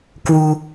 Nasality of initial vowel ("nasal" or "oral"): oral